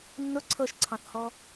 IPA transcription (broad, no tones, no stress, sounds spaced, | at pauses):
nː ʊ ǀʰ ɤ ʃ ǀʰ ɑ̃ θ h ɔ